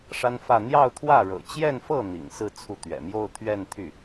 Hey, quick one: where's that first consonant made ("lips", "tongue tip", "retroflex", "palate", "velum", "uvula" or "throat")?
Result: retroflex